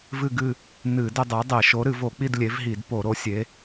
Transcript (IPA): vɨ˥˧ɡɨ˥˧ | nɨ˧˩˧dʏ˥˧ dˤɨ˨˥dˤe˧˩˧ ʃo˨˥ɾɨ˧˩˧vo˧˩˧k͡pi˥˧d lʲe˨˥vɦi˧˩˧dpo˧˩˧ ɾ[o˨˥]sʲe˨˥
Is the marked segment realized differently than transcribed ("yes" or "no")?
no